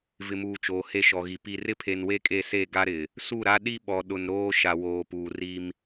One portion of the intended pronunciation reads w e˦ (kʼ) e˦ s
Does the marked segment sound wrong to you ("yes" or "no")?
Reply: no